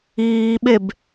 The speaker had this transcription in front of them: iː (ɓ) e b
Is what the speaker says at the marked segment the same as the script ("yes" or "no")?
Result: yes